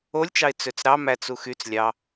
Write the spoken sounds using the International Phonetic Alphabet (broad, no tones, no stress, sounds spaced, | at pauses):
o lʲ t͡ʃ ɑ ɪ̯ t͡s ø t͡s ɾ ɑ m æ t͡s u x y t͡s lʲ ɑ